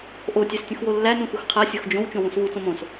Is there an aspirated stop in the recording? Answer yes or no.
yes